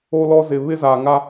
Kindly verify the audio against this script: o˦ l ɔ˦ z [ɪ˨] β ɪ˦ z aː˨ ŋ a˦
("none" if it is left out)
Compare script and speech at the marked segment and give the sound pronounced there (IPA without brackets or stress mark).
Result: ɪ˨